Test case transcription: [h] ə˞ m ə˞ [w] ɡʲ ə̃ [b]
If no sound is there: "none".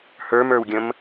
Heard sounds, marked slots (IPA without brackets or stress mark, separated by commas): h, w, m